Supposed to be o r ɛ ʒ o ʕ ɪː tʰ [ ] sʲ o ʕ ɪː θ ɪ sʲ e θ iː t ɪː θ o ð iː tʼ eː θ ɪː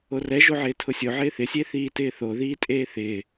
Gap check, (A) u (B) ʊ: B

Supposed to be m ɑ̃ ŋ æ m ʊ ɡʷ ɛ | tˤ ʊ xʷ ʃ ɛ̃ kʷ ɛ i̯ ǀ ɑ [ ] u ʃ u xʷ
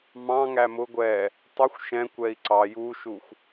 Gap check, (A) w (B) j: B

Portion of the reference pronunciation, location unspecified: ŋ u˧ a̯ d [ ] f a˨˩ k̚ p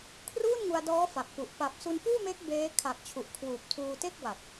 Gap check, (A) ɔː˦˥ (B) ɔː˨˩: A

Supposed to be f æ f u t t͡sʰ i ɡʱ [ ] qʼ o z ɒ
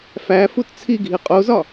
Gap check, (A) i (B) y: A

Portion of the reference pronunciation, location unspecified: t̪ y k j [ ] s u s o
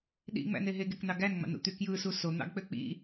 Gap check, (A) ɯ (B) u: A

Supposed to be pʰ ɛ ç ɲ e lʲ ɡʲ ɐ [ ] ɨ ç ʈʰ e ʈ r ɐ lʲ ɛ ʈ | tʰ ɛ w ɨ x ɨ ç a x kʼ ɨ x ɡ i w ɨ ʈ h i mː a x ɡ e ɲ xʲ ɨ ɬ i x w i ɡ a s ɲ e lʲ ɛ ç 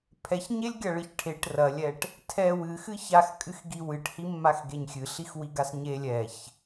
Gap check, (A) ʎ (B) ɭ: B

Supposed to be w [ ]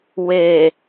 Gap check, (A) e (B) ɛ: A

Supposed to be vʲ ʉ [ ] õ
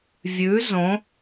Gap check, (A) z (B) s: A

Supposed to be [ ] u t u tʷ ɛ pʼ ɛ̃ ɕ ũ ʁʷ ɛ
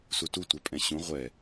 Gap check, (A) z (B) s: B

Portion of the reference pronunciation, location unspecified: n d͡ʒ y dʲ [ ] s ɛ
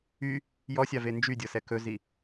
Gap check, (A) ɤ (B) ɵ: A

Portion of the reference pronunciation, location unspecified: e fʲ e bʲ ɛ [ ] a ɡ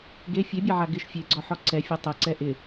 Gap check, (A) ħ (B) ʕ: B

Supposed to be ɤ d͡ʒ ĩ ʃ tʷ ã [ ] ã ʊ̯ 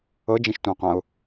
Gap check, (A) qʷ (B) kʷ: A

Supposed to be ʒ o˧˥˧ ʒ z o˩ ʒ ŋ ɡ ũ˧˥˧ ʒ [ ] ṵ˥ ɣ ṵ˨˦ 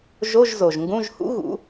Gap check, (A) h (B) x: A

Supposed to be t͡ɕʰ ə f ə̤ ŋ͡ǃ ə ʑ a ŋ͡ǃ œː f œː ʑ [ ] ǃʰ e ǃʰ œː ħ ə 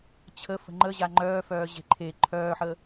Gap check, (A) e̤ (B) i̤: A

